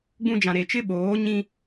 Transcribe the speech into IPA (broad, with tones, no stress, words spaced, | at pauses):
ɡ͡bũ˦ d͡ʒã˨ɾe˨t͡ʃɪ˦ ɓoː˨˦ɲĩ˦